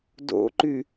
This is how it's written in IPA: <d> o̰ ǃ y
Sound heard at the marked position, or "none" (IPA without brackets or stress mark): d